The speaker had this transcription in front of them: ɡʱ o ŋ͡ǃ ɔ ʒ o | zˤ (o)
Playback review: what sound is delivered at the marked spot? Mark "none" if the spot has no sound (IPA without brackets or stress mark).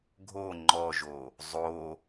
o